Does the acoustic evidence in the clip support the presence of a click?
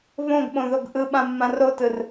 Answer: no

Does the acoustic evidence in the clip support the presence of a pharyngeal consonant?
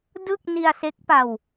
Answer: no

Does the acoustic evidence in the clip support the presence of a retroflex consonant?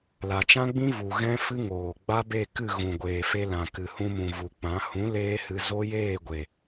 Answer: no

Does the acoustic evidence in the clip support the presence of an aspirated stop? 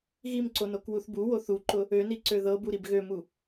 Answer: no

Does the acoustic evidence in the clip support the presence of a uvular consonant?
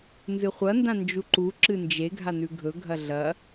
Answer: yes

